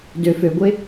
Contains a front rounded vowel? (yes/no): yes